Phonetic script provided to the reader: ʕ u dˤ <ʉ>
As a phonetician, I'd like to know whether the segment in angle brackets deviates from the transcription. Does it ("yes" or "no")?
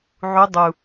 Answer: yes